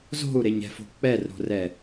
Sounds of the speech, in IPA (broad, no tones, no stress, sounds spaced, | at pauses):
z o̤ u̯ ɾ e ɲ ɛ̤ f o̤ k͡p ɛ r ɾ o̤ r ɛ